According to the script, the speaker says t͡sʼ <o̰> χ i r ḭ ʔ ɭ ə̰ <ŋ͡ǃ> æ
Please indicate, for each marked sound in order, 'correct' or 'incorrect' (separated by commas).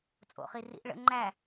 correct, correct